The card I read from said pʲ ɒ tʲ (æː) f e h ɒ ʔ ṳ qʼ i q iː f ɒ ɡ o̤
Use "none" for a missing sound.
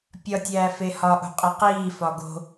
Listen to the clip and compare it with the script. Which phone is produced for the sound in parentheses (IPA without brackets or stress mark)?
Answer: æː